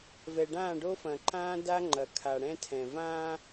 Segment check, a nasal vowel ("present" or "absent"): present